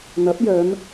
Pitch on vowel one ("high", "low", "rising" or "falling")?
rising